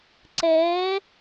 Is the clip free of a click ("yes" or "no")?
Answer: no